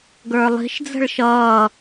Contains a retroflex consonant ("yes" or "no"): yes